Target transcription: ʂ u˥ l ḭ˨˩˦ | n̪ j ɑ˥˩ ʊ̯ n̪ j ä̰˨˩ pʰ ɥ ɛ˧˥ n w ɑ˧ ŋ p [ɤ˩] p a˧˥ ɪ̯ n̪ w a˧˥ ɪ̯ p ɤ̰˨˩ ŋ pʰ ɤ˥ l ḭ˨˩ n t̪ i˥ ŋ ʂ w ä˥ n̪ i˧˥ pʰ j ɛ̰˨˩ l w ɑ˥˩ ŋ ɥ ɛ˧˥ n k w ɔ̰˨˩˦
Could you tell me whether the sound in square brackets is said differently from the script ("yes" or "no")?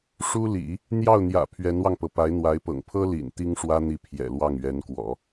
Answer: no